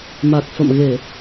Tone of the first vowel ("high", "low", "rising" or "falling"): low